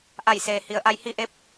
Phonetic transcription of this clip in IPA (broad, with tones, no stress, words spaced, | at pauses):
ʔa˧˩jseː˩ hi˩ə̯ʔa˧j hi˧ʔe˧˥p̚